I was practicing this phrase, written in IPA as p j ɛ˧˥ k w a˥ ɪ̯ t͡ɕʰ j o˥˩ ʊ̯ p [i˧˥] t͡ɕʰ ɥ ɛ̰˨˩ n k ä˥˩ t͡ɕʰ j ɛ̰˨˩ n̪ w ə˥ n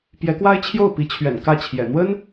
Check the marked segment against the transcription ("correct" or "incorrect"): correct